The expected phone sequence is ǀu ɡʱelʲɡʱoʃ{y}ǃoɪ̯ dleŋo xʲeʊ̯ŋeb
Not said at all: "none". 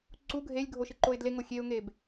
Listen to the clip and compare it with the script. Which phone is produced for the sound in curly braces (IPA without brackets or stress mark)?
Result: ɨ